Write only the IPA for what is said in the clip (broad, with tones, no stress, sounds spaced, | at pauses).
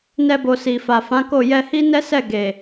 n ɛ˧ b o˨ s i˨ f a˨ f ã˨˦ k o˦˨ j ɛ˧ h i˦ n ɛ˦ s ɛ˦˨ ɡ e˨